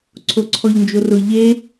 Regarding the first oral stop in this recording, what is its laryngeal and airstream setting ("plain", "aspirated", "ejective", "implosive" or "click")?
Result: click